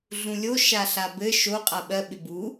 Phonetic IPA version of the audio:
ɮ ũ lʲ o ʃ a ɬ a b ɘ ʃ o qʼ a ɓ ɜ ɓ ɪ b u

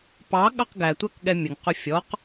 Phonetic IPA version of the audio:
p ɑ ɠ ɑ q ɡ æ tʷ ɜ k ɠ ɛ mʲ ə ŋ q ʊ fʲ ɔ q

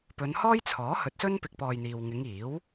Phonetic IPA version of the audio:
p ɵ˨˧ n h ɔː˥ j t͡sʰ ɔː˨˥ h ɵ˨˥ t̚ s ɵ˥ n p ɪ˧ k̚ p ɔː˧ j n̪ iː˨ w ŋ ɪ˨˧ ŋ iː˨˥ w

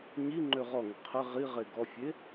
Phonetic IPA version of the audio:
ɲ i ŋ͡ǃ ø ʁ ɔ ŋ ə qʰ ɘ ʁ i ʁ e ɡ ɔ fʲ e

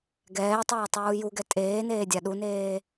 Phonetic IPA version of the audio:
ɡ ɛː tˤ aː tˤ uː j u ɡ ɛ tʼ eː n eː dʲ a ɗ u n eː

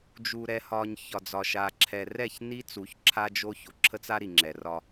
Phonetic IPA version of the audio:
d͡ʒ u˨ ɾ ɛ˨ h ɒ˨ ɲ ç ɒ˨ d͡z ɒ˨ ʃ a˨ ǁʰ ɛ˨ r ɛ˦˨ ç n i˦ t͡s u˨˦ ç ǁʰ a˦ d͡ʒ o˦ ç o˨ ǁʰ ə˦ t͡s a˦ ɾ i˨ ŋ͡ǁ ɛ˨ r ɒ˦

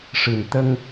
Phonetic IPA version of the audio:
ʂ ɨ˨˩ n t̪ ə˧ ŋ

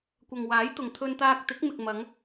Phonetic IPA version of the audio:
kʷ ɐ˨ ŋ w aː˨˥ j t̪ ʊ˨ ŋ t̪ʰ ɵ˧ n t̪ aː˧ k̚ t̪ ɪ˨˥ k̚ m ɪ˨ k̚ m ɐ˨˧ ŋ

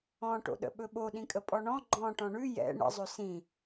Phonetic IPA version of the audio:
ɔ̃ ʈ o̰ ɗ ə̰ ɓ ɵ ɓ o ɗ ĩ kʼ ə pʼ ɔ ɳ ɔ̃ ɡ͡ǃ ɔ̃ ʈ ɔ̃ ɳ ʉ j ɛ̰ ɳ ə̰ zˤ ɵ s ĩ

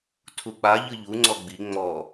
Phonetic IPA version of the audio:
tʰ u k͡p a ʎ ɯ ʎ u ŋ͡ǀ ɔ ɡ͡b i ŋ͡m ɔ

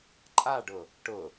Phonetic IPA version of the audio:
ǃʼ a ɖ ʊ | ʈ ʊ

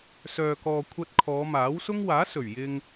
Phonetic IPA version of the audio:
s œː˨ k ɔː˨ kʷʰ ɐ˧ t̚ kʰ ɔː˨˧ m aː˨˥ w s ʊ˥ ŋ w aː˨˥ s ɵ˨˩ ɥ j ɪ˧ ŋ

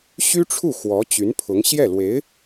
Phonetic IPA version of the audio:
ɕ y˥ ʈ͡ʂʰ u˥˩ x w ɔ˧˥ t͡ɕ y˧˥ n pʰ ʊ˧˥ ŋ ɕ j ɛ˥˩ l w e˧˥ ɪ̯

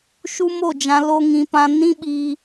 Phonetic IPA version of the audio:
ʃ u˦ m o˦˨ d͡ʒ ã˨ l o˧ ŋ ĩ˨ p ã˧ n ĩ˦ ɓ iː˧

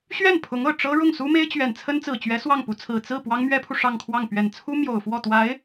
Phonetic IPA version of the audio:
ɕ ɥ ɛ˥˩ n pʰ ʊ˧˥ ŋ ɤ˨˩ ʈ͡ʂ ɤ˥ ɻ ʊ˥˩ ŋ s u˥ m e˥ ɪ̯ t͡ɕ ɥ ɛ˨˩ n t͡sʰ ə˥ n t͡s ɹ̩˨˩ t͡ɕ ɥ ɛ˧˥ s w ɑ˥˩ ŋ p u˧˥ t͡sʰ ɹ̩˨˩ t͡s ɹ̩˥˩ p w ɑ˥ ŋ m ɥ ɛ˥ pʰ u˨ ʂ ɑ˥˧ ŋ kʰ w ɑ˥˩ ŋ p ɥ ɛ˨˩ n t͡sʰ u˥ m j o˨˩ ʊ̯ f w ɔ˥˩ t̪ w a˧˥ ɪ̯

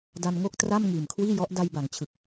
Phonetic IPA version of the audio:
d a˧ n ŋ o˥˩ k̚ t r a˥˩ m ŋ iː˨˩ m kʰ w iː˥˩ j ɔ˦˥ ʔ d a˧ j b a˩˦ ŋ t͡ɕʰ ɯ˨˩ k̚

